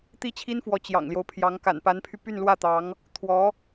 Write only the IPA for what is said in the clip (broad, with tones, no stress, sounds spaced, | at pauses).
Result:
t̪ i˥ t͡ɕʰ i˥ n f w ɔ˧˥ t͡ɕ j ɑ̰˨˩ ŋ l j o˦ ʊ̯ pʰ j ɑ˧˥ ŋ k a̰˨˩ n p a˧˥ n pʰ y˧ p y˥˧ n l w ä˥˩ t̪ ɑ˧˥ ŋ | t̪ʰ w ɔ˧˥